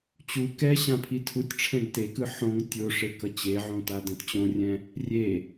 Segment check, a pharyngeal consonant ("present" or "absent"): present